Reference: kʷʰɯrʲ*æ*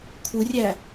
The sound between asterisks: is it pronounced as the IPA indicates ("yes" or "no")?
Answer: yes